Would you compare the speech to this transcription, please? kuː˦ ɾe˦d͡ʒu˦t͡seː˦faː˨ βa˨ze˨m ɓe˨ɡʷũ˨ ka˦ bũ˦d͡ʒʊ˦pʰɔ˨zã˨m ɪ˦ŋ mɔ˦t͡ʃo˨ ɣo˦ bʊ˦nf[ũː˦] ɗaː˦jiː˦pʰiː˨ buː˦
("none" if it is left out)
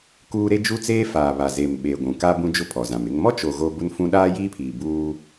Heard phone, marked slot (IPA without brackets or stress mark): ũ˦